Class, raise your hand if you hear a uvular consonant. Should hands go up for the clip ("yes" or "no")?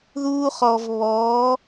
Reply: yes